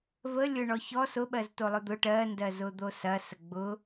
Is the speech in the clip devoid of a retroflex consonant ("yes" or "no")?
no